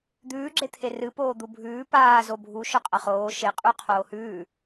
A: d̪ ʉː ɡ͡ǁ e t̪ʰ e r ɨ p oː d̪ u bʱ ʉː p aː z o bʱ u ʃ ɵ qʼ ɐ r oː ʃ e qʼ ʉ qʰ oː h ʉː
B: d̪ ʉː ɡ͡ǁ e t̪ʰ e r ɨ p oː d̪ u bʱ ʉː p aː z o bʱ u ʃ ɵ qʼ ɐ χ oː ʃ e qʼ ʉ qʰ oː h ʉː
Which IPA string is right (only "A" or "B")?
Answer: B